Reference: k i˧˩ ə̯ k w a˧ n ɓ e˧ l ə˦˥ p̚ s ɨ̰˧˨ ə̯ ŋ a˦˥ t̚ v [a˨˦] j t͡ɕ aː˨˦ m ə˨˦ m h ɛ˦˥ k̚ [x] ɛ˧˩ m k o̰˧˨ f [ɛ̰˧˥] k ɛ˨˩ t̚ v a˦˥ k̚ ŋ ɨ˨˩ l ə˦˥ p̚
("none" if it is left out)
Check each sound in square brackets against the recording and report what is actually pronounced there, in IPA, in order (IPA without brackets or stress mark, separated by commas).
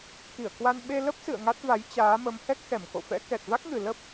a˨˦, x, ɛ̰˧˥